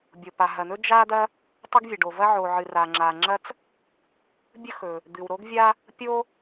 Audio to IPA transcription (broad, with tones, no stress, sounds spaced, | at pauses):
bʲ o˩ p a˩ ɦ ɐ˩ n̪ ɵ˥ d͡ʒ a˥ d̪ ɐ˥ | tˤ ɵ˥ ɡ vʲ ɐ˩ ɖ o˩ v ɐ˥ ʕ o˩ ʕ ɨ˩ r a˩ ŋ͡ǁ a˩ ŋ͡ǁ ɐ˥ t͡s | bʲ ɵ˥ x ɵ˩ | d̪ ɨ˩ w ɾ o˥ ɡ vʲ a˥ | pʲ o˥